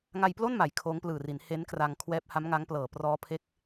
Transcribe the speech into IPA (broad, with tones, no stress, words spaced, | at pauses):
ŋa˧jplo˥˩nma˩˦j kʰoː˦˥ŋplɯː˨˩ri˩˦n he˦˥nkra˧ŋ kʰwɛː˦˥p̚ha˦˥m ŋa˦˥ŋplɤː˨˩ prɔː˦˥ pʰe˦˥k̚